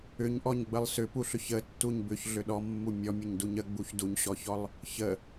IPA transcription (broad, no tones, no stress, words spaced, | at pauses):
ʏɲʔɔɲɡ͡bəlˠ sʏpuɬʏç ətːuɲ bʏçɮʏ ɗɔmːu mʲɔmʲəɲduɲ əɡ͡buç duɲɕɔçɔlˠ | çə